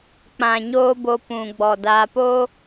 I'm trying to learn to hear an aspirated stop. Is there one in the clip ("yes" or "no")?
no